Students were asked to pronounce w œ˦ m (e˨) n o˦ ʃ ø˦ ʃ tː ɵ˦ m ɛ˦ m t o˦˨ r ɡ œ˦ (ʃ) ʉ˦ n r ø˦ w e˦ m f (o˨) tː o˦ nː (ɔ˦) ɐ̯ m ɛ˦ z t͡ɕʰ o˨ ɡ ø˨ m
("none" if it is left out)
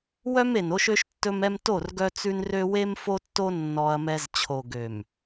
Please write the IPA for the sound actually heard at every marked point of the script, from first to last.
e˨, t͡s, o˦, ɔ˦

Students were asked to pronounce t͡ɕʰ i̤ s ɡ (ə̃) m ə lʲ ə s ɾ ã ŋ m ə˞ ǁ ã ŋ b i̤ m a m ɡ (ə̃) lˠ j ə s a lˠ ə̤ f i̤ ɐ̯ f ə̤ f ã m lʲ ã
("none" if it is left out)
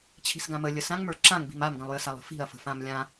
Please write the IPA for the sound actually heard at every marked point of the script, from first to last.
ã, ə̃

